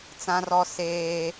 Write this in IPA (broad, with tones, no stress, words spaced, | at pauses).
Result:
t͡sã˦rɔ˦seː˦